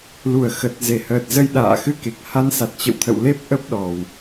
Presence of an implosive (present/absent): present